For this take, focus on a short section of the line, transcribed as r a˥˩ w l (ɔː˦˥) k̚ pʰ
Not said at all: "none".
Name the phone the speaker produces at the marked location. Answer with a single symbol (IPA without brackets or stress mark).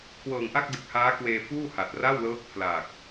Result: ɤː˦˥